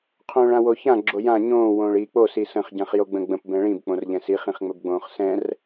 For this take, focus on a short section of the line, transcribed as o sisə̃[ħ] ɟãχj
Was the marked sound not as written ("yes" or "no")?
yes